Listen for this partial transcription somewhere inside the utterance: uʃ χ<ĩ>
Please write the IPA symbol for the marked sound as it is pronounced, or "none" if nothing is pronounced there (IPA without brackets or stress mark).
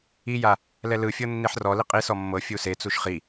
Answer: i